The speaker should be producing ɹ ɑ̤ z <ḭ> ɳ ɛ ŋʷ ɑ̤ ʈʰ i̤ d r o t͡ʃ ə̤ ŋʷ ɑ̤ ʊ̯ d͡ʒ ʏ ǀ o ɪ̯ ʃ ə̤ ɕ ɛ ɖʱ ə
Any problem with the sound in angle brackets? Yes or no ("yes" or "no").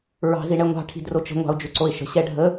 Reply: yes